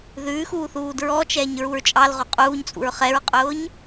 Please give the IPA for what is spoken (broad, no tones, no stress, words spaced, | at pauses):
ðʉːxuː θuːdɹɔt͡ʃɛːɲ ɹuɹt͡ʃʼɑlʁo qʼuːɲt͡sʼṵɹ χɛɹqʼʊːɲ